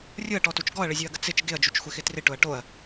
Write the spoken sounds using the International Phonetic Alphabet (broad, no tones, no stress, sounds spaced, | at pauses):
rʲ ʊ ɐ̯ ʈ ɔ t u t͡ʃ ɡ ɔ ɐ̯ ɭ ɪ zʲ u ɐ̯ ɡ ə t͡s ɪ t͡ʃ ɡ ɪ ɐ̯ d͡ʒ u t͡ʃ xʷ ɪ x ɪ t r ɪ ʈ ʊ ɐ̯ ʈ o ɐ̯